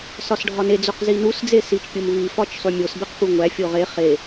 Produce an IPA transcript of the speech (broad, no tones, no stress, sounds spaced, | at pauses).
s ɒ s ɖʱ ɒ n e d͡z o q z i n u s d͡z e s i t͡ʃ pʲ o m v i f ɒ t͡ʃ sˤ u mʲ o s b e q p u ŋʷ æ fʲ o ʁ e χ e